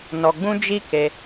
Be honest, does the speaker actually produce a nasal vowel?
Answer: yes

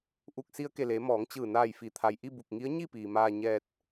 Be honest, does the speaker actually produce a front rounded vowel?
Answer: no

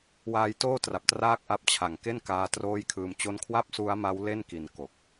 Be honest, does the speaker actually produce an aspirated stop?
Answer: yes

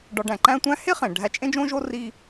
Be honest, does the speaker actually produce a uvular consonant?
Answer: yes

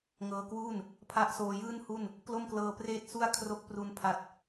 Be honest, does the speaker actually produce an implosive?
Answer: no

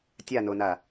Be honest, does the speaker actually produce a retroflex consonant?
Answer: no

